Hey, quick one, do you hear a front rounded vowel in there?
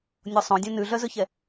yes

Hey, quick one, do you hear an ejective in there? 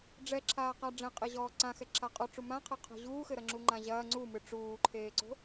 yes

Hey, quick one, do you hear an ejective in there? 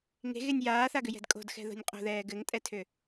yes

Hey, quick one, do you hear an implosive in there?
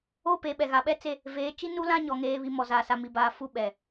yes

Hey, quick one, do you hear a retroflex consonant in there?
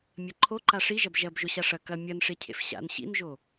yes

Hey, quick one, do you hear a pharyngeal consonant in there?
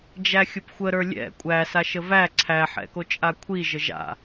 yes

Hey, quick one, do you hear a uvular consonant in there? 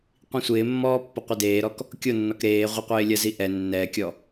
yes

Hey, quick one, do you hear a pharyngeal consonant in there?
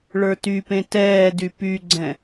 no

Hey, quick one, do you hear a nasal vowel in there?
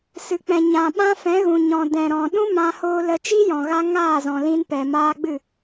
yes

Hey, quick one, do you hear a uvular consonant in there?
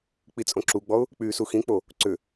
no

